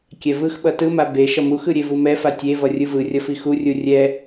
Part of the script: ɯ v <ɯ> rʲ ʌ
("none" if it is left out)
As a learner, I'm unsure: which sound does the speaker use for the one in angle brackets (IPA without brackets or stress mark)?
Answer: ɯ